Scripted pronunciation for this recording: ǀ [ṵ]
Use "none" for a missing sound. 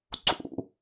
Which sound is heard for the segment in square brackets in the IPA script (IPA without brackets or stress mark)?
ṵ